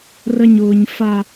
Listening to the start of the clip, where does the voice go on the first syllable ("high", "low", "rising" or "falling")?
high